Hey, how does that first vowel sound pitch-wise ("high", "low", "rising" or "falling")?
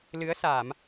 rising